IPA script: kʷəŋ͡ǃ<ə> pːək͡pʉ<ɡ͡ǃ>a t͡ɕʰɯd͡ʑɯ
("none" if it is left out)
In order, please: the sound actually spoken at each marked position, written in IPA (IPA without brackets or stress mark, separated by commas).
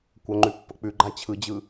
ʉ, ɡ͡ǃ